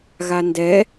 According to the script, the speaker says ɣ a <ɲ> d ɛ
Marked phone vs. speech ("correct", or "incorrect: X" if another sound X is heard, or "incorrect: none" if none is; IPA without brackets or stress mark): incorrect: n